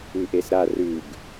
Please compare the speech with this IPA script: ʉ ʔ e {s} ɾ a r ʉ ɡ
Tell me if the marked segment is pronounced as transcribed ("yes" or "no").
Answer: yes